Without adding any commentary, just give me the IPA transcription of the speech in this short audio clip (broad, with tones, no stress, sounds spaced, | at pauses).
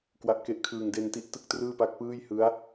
k w a˦˥ ʔ k e˦˥ ʔ kʰ ɯː˧ ŋ d e˧ n t i˥˩ ʔ t ɯ˥˩ k̚ t r ɯː˥˩ p a˦˥ k̚ p ɯː˥˩ j h ɯ˦˥ a̯